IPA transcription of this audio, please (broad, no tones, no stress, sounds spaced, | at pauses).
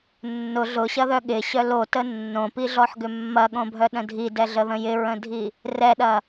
nː ʊ ɮ ʊ ɕ ɐ ð œ ɠ ɪ ɕ œ l o t ə nː õ p i ɮ ɔ ħ ɡ ʏ mː ɐ ɠ õ bʱ œ ɗ ə̃ dʱ i d ɛ ɮ ə ð ə̃ j ɪ ɹ ə̃ dʱ i | r ɛ ɗ ɐ